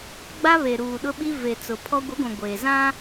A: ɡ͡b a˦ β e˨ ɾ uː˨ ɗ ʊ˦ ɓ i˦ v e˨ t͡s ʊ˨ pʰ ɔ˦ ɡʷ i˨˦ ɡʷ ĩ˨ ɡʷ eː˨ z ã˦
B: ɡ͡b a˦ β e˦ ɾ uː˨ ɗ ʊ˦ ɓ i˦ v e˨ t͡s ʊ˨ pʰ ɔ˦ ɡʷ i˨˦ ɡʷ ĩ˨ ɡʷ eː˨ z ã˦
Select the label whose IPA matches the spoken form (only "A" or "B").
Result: A